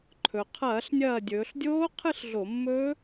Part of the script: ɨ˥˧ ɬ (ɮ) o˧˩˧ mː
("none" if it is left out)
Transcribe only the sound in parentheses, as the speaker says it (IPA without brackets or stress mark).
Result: ɮ